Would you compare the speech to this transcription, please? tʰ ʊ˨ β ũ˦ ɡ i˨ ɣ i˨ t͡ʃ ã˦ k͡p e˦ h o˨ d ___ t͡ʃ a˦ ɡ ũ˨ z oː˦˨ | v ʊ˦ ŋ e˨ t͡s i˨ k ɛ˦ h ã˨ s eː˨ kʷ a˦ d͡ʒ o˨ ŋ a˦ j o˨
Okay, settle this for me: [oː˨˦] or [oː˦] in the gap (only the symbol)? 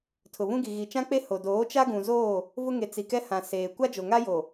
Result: oː˨˦